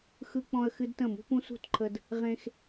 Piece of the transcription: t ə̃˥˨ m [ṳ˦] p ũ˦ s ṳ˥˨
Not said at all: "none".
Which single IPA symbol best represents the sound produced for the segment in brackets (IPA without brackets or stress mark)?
ṳ˦